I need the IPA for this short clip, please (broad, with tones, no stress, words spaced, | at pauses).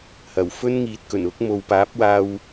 hɐ˨˩wfɵ˥nŋiː˨t̚kɵ˨˩n ʊ˨˥k̚ mo˨wpaː˨˥p̚waː˧w